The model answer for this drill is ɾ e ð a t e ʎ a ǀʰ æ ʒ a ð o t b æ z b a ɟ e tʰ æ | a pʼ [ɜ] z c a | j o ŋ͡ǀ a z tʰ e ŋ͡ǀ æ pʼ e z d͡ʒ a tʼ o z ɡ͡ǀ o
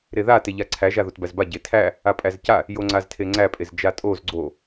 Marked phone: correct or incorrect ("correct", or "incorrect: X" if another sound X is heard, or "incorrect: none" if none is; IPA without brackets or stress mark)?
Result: incorrect: æ